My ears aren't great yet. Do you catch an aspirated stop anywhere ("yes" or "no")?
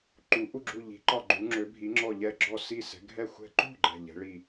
no